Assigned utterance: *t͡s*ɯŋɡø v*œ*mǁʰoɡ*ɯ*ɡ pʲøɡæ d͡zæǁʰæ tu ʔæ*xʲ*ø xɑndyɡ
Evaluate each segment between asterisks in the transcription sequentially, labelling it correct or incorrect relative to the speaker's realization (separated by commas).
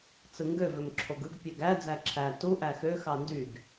correct, incorrect, correct, incorrect